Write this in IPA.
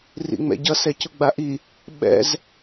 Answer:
rḭŋ͡mɛ̰ɟʌ sɛcʊɡ͡baʔi | ɓɛ̰z

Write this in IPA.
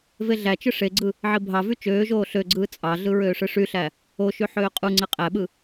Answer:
veɮæt͡ʃɯ ʂeɡ͡ǀɯ | ʕibʱɑvy t͡ʃøːʒoː ɬøɡ͡ǀɯː t͡sʼɑɮɯ ɹøːʂɯʂyɬæ | oʃy ħøːqʼuŋ͡ǀe qʼæɓɯ

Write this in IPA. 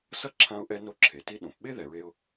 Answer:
sʌ˥ǁʰã˧ʊ̯ʔɛ˧ no˧ǁʰe˩ti˧ɗõ˩p ɓe˥ðɛ˩ɹe˧ʊ̯

